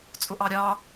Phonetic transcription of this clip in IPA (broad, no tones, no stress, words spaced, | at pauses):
t͡sʼʊʔɑɾʲɑ